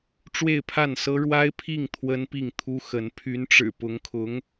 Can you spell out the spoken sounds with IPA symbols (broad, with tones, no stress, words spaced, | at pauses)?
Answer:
ʈ͡ʂwe˥˧ɪ̯pʰa˥˩nsɤ˥ ɻwa˥ɪ̯pʰi˥˩ŋ t̪ʰwə˥npi˥˩ŋt̪ʰu˥xə˧˥n pʰy˧˥nʈ͡ʂɻ̩˨˩pʊ˧˥ŋkʰʊ˧˥ŋ